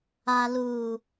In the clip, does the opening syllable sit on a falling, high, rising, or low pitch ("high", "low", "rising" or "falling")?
low